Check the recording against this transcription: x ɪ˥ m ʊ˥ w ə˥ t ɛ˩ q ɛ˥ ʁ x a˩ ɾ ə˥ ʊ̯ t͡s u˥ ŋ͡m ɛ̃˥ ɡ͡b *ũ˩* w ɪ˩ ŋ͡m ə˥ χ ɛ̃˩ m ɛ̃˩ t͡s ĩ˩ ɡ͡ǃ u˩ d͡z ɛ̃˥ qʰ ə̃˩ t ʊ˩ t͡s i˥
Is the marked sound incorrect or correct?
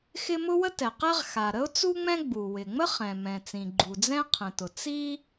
incorrect